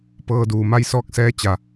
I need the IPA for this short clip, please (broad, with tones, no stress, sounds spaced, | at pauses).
p ɤː˧ d uː˩ m a˧ j s ɔː˧ k̚ s ɛː˧ t͡ɕ a˩